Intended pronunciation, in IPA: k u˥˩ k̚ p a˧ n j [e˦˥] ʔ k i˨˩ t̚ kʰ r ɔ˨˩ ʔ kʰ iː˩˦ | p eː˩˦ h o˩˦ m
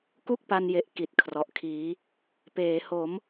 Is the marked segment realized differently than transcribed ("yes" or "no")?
yes